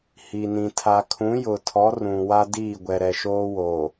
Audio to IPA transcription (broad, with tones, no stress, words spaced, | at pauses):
hi˨nĩ˨ tʰa˨kʰũ˨˦jʊ˨tʰɔ˨˦ rũ˨wa˦ diː˦˨ɡʷɛ˨ ɾɛ˨ʃoː˦woː˨